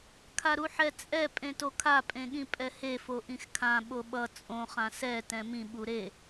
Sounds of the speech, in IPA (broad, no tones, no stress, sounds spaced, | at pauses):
kʰ a ɾ u ħ ɛ t͡sʼ ɛ pʼ ẽ t o kʰ a pʼ ẽ ɠ ĩ pʼ ɛ h e f o ʔ ĩ x kʰ ã ɓ o ɓ ʌ t͡sʼ õ χ ã s ɛ t ɛ̃ m ĩ ɓ u ɾ e